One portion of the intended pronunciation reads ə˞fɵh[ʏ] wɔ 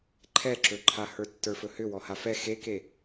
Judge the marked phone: correct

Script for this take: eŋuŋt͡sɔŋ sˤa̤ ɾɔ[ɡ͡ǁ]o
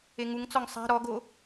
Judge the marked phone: incorrect: ɡ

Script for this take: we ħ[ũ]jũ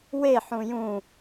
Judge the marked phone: correct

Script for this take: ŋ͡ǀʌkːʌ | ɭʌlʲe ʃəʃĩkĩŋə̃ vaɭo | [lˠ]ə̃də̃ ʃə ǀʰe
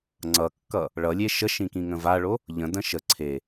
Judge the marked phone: incorrect: ʎ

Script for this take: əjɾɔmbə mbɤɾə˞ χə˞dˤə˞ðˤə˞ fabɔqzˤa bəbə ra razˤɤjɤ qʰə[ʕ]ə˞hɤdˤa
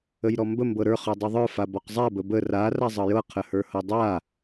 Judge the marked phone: incorrect: h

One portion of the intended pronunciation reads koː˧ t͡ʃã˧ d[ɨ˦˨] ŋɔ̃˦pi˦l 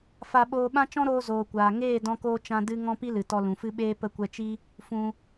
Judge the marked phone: incorrect: ɨ˦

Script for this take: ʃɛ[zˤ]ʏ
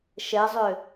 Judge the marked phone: correct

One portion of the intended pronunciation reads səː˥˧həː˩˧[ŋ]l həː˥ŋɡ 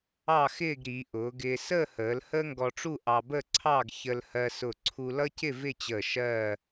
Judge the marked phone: incorrect: none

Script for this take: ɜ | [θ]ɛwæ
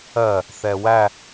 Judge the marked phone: correct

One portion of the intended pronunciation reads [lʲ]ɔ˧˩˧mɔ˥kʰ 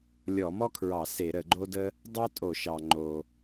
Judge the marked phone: correct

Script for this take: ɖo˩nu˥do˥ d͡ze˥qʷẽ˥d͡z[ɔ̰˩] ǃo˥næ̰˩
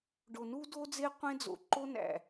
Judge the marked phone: incorrect: o̰˩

